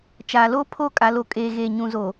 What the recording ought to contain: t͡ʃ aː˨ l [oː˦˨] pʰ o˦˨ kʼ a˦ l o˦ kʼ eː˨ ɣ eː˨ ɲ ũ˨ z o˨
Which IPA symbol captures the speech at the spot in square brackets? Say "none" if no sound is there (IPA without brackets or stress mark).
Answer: oː˦